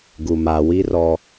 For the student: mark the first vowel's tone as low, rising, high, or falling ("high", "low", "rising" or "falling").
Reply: low